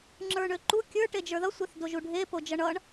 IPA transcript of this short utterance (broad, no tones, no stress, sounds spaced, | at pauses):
ŋ͡ǁ ə˞ ɳ ø ǃ u kʲ ə˞ ʈ e d͡ʒ ə˞ ð ʌ sʷ e θ d o ʒ u ɖʱ e p o d͡ʒ ʌ ɳ ʌ ɳ